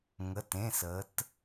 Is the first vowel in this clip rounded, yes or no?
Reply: no